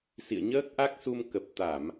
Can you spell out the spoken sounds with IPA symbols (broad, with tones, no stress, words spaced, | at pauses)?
sḭ˧˨ə̯ɲəː˦˥k̚ʔa˦˥k̚su˧m kə˨˩p̚t̪a˧˩˨m